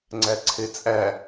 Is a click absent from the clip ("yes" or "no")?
no